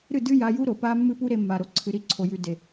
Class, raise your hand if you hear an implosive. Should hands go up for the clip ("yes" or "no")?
no